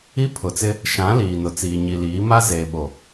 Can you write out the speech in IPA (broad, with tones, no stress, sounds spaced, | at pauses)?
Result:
i˦ pʰ ʊ˨ t͡s ɪ˦ | ʃ ã˨˦ l iː˨ n ʊ˨ t͡s iː˨ ɲ i˨ l iː˨˦ m a˦ z eː˨ ɓ o˨